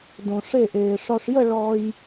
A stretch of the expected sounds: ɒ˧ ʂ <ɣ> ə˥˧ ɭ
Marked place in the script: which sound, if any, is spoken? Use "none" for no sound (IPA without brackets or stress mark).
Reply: j